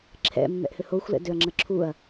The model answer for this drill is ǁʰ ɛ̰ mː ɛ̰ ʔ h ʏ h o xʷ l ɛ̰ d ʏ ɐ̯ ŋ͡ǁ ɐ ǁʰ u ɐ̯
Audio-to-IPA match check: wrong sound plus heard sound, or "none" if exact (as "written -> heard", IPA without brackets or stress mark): none